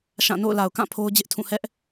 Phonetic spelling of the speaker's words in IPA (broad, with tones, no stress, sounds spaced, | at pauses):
ʃ ã˦˨ n o̰˦˨ ʊ̯ l a˨ ʊ̯ k ã˦˨ pʰ o˦ ʊ̯ d͡ʑ ɪ˦ ʔ tʰ ũ˦˨ h ɛ˦ ʔ